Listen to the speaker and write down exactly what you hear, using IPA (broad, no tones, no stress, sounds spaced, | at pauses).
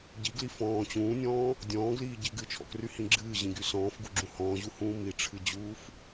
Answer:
ɟ i ɡ l i f ɔ̃ː t͡ɕ ũː nʲ ɔ̃ː | dʲ ɔ̃ː ɡ l iː ɟ i ɡ ɨ t͡ʃʰ ɔ̰ k r y h ĩ ɡ͡ǁ ɨː ʑ ĩ ɡ y s ɔ̃ː f ɡ u ɡ͡ǁ ũ h ɔ̃ː ʑ u h ũː m i ʈ͡ʂʰ ɨ d͡ʑ uː f